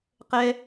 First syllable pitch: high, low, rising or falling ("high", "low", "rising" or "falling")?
high